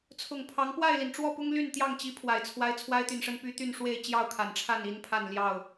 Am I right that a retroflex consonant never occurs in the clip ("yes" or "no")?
no